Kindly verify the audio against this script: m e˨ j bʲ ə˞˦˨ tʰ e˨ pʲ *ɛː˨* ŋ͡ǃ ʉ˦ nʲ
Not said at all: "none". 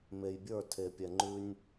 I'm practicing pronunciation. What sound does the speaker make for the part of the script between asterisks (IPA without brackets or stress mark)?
ɛ˨